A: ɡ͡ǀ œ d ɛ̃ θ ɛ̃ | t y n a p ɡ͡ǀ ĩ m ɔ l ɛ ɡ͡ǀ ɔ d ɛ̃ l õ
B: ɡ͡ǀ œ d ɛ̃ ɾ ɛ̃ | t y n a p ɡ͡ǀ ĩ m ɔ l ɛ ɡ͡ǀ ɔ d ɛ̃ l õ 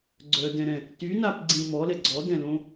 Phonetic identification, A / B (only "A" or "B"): B